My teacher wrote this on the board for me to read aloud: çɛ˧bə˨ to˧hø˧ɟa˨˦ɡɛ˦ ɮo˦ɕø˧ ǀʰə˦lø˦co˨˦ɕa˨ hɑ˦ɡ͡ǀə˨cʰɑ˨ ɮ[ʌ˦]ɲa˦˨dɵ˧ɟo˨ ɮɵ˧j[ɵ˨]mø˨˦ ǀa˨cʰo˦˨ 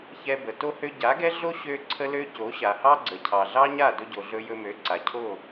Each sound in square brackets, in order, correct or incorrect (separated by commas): incorrect, incorrect